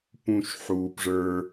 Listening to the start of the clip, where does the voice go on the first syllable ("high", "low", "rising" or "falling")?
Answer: low